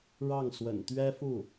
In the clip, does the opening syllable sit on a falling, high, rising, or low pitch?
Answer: falling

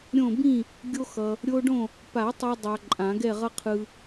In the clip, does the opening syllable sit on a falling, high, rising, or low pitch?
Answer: falling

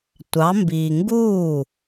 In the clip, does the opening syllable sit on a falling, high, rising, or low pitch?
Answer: rising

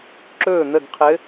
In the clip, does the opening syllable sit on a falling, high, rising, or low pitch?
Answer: falling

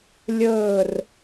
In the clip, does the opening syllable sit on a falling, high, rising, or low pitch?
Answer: falling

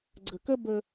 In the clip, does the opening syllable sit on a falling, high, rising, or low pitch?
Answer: low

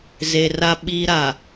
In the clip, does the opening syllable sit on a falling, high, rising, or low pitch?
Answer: low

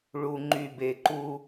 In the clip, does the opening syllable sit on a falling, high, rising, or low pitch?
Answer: low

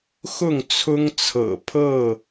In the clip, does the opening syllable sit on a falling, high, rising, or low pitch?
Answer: falling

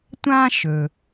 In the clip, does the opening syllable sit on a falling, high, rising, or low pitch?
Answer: high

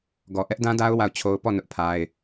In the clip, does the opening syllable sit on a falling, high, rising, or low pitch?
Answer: low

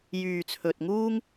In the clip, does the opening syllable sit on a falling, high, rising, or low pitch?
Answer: low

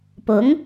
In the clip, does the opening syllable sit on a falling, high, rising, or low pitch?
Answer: rising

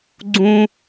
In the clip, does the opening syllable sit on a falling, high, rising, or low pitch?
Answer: high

